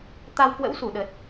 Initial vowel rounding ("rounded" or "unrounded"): unrounded